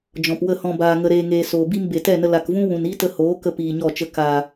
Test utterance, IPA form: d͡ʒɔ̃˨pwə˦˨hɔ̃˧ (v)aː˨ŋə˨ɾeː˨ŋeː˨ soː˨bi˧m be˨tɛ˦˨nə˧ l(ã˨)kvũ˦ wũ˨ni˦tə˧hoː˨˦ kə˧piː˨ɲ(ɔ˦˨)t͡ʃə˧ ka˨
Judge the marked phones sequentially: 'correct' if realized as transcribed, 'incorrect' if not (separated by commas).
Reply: incorrect, incorrect, correct